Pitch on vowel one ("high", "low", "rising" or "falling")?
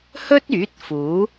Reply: high